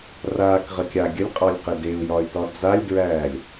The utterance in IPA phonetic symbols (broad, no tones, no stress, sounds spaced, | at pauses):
r aː k ʁ ə kʲ a ɡʲ ə lʲ qʼ ɒ lʲ q ə d e u̯ j ɒ y̯ t ɒ d͡z a lʲ d ɹ æː lʲ